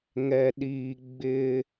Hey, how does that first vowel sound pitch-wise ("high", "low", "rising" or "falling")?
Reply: low